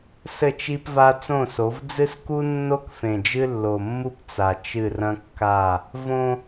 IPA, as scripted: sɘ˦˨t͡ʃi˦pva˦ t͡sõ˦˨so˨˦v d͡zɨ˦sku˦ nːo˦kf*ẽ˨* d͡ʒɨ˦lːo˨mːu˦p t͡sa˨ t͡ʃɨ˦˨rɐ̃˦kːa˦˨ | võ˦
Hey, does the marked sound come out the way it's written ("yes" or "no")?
yes